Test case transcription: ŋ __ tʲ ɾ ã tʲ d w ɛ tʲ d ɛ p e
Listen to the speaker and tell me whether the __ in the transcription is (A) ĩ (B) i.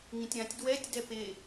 A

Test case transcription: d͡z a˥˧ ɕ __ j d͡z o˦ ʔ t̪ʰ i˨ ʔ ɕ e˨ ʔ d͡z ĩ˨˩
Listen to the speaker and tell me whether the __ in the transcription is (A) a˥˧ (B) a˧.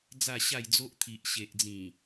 A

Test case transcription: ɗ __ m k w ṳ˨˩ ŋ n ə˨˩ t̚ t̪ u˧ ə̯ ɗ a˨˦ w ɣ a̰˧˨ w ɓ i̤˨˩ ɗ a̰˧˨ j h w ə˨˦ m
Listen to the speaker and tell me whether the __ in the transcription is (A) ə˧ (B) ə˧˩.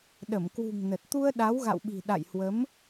B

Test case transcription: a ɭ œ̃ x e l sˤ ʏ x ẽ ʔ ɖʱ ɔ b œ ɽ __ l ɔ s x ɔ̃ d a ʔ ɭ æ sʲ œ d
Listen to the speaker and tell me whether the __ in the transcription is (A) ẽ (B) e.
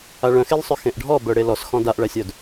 B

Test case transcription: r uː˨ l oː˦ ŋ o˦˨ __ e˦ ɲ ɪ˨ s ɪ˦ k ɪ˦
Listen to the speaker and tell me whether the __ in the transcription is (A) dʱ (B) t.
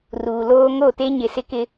B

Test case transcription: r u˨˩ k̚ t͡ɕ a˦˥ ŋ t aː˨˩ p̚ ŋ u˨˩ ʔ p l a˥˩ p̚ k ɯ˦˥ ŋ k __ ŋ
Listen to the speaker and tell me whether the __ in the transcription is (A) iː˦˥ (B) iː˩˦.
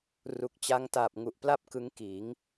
B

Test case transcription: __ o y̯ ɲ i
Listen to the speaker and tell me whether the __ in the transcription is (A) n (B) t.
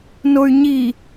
A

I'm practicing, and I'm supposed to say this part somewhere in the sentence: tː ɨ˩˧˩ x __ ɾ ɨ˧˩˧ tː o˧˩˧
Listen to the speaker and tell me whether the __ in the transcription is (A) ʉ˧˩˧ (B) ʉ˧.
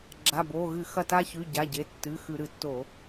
A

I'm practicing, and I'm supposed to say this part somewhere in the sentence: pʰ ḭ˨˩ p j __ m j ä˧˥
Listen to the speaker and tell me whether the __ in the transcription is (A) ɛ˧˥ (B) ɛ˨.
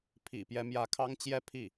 A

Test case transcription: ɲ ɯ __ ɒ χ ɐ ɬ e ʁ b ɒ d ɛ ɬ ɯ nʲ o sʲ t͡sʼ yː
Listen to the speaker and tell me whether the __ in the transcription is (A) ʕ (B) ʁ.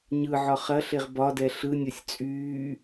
A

